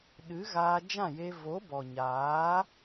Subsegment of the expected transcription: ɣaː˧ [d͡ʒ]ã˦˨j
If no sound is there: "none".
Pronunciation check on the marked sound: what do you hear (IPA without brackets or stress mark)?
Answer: d͡ʒ